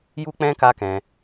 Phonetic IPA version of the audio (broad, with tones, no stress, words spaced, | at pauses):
ju˦k͡pɛ̃˦ ka˦kɛ̃˧